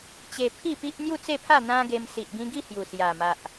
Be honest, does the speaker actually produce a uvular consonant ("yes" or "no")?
no